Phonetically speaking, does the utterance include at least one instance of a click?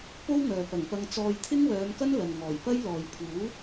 no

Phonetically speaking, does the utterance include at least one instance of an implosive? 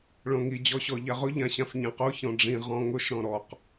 no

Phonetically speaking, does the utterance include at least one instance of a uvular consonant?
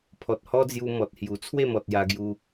no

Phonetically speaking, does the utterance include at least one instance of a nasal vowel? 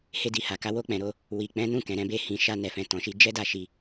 yes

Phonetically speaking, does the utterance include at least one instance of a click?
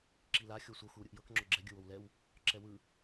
yes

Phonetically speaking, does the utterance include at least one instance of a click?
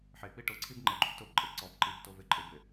yes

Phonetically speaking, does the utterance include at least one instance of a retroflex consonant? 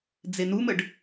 yes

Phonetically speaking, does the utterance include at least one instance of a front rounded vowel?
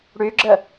yes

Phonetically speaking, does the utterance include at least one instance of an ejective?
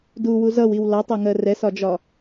no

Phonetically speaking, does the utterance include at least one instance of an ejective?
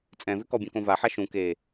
yes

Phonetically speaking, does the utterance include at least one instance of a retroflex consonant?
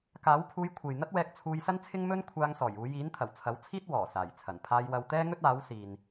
no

